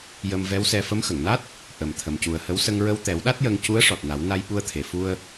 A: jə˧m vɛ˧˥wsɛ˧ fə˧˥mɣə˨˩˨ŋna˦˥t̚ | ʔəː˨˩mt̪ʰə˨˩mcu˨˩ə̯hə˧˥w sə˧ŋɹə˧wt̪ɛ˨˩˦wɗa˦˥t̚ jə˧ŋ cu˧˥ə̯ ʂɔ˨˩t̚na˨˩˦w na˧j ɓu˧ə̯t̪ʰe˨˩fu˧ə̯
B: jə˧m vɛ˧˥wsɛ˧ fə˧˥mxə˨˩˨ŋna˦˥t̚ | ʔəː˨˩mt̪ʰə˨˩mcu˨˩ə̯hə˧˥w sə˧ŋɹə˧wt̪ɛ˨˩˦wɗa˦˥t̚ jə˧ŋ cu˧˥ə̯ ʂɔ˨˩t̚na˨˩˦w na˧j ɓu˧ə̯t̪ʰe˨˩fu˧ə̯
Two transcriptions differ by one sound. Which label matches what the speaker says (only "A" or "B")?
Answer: B